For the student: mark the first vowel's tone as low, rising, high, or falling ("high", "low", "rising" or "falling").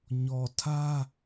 low